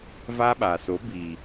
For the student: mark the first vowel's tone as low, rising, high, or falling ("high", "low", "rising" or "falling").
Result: high